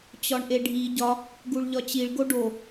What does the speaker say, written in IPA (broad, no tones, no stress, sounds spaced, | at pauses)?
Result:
t͡ɕ ɒ ɳ ʔ e ɖʱ i ɟ ɒ | ɡ u ɭ ʎ ɒ t͡ɕ i ɭ ɡ o ɖ o